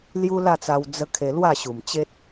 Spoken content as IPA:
l j u˦ l a˥˧ t͡s a˧ w d͡z ə˦ kʰ e˧ l w a˥˧ ɕ u˨˩ m t͡ɕ e˦ t̚

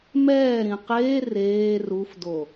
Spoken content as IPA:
m ɛː ɾ ĩ q eː r eː r u f d o

